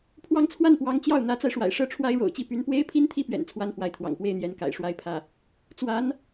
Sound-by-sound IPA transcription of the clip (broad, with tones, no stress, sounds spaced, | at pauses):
pʰ w ɑ˥˧ ŋ t͡sʰ w a˥˩ n p w ɑ˧˥ ŋ t͡ɕ j ɑ˥˩ ʊ̯ n̪ ä˧˥ t͡s a˧ ɪ̯ ʂ w a̰˨˩ ɪ̯ ʂ ɤ˥ ʈ͡ʂʰ w a˥ ɪ̯ ɻ o̰˨˩ ʊ̯ t͡ɕ i˧˥ p y˧˥ n p w e˥ ɪ̯ pʰ i˥ n t̪ʰ i˥˩ p ɥ ɛ̰˨˩ n t͡sʰ w a˥ n f w a˧˥ ɪ̯ t̪ʰ w ɑ̰˨˩ ŋ p w e˥˩ ɪ̯ n̪ j ɛ˧˥ n k a̰˨˩ ɪ̯ ʂ w a˥˧ ɪ̯ pʰ ä˥˩ | t͡s w a˧˥ n